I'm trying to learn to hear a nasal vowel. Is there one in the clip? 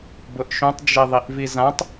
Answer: yes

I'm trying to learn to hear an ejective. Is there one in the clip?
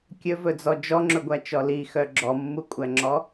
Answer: yes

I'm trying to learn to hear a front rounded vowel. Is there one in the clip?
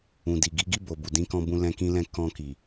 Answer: no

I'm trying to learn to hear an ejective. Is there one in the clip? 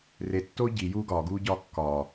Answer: no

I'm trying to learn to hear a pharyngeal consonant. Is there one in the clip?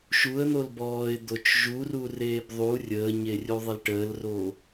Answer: no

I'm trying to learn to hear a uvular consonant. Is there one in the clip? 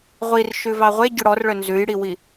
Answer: yes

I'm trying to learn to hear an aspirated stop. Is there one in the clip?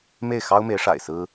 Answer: no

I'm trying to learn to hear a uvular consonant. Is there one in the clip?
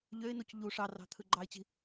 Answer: no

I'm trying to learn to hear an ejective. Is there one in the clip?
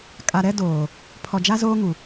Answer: yes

